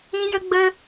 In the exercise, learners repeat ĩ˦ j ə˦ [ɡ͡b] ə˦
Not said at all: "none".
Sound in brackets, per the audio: ɡ͡b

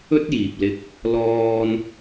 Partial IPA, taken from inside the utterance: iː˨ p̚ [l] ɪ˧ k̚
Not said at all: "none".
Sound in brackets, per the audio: l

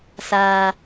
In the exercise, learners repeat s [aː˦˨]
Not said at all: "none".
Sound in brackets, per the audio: aː˨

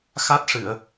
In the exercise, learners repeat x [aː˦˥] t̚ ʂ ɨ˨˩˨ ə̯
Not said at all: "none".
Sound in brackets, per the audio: a˦˥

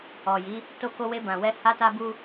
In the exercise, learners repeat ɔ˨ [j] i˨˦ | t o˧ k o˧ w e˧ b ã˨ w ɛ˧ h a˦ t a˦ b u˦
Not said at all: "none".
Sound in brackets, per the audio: j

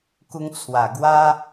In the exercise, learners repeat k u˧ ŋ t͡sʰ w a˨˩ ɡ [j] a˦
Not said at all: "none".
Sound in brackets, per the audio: w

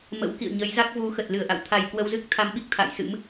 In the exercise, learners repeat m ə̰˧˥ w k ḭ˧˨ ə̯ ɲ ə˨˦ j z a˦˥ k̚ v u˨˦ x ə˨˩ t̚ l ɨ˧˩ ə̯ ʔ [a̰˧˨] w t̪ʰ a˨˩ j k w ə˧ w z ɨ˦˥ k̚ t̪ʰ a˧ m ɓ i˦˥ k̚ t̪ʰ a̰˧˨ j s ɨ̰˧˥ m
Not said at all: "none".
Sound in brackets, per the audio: a̰˧˨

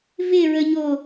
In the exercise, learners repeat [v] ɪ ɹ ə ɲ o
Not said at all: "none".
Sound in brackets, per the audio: v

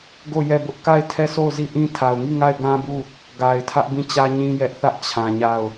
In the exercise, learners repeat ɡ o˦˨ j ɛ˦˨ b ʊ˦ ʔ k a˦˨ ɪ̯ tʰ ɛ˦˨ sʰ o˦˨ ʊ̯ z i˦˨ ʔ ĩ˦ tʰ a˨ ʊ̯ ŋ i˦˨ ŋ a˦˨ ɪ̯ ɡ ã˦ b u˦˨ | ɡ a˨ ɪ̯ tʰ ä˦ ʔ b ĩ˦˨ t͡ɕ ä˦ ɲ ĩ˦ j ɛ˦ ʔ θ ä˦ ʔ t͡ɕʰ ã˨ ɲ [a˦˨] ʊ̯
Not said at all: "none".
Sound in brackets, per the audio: a˦˨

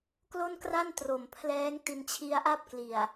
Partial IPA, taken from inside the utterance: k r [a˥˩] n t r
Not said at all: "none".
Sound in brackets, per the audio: a˥˩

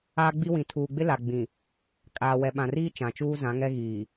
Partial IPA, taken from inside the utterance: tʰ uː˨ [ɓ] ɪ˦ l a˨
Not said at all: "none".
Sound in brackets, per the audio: ɡ͡b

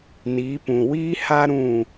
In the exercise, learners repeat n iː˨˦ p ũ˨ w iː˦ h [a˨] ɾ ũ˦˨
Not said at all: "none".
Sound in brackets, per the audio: a˦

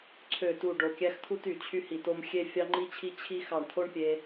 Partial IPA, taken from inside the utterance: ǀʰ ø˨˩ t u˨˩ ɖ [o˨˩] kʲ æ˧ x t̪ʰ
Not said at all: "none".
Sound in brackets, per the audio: o˨˩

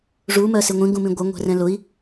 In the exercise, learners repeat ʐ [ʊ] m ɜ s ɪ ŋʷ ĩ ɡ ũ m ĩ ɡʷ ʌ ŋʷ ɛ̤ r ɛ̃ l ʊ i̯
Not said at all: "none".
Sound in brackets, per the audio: u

